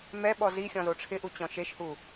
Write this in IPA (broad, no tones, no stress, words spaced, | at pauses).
mɛɓɔ zixʲɔ̃zo ʈ͡ʂʰɪʔut͡ɕɔ̃ ʃeʃhu